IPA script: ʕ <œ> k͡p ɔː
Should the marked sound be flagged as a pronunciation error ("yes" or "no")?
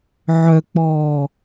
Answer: no